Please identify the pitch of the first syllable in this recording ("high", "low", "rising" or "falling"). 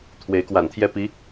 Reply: rising